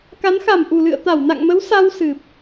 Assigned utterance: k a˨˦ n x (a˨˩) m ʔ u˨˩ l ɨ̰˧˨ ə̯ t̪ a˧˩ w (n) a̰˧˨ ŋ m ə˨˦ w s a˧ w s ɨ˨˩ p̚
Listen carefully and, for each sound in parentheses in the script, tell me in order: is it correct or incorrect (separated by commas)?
incorrect, correct